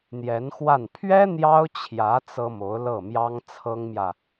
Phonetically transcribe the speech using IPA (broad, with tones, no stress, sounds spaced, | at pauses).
n̪ j ɛ˧˥ n x w a˥˩ n pʰ ɥ ɛ˥ n̪ j ɑ˥ ʊ̯ t͡ɕʰ j ä˧˥ t͡s ɤ˥ m o˧˥ ʊ̯ l ɤ˥˩ m j ɑ˥ ŋ t͡sʰ ɤ˥ ŋ m j ä˨